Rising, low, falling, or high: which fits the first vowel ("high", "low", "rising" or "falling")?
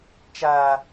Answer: high